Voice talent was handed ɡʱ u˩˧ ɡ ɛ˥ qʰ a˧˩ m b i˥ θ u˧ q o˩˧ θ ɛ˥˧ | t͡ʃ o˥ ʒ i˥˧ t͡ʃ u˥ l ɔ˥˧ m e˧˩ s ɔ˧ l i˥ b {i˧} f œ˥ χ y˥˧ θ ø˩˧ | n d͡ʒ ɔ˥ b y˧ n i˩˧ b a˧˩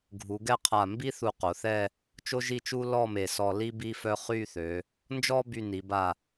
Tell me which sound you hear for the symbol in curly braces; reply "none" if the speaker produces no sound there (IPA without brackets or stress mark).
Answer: i˥